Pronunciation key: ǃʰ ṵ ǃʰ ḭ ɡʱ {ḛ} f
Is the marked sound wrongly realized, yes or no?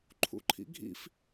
yes